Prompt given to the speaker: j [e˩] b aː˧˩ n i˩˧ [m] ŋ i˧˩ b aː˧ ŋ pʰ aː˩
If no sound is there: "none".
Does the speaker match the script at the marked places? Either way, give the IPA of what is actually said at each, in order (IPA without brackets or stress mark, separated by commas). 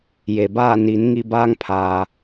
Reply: e˩, n